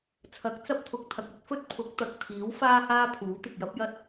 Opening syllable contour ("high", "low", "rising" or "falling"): rising